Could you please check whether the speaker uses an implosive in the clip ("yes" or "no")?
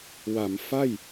no